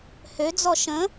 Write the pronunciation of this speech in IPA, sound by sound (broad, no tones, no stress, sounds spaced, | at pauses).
h ø d͡z ɔ ʃ ə̃